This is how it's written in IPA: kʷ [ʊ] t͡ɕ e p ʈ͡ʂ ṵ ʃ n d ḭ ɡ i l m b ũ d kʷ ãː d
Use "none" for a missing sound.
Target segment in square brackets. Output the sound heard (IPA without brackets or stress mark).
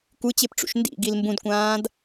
ɯ